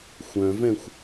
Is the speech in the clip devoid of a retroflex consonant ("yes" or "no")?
yes